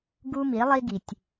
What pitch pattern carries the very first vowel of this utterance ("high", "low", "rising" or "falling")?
high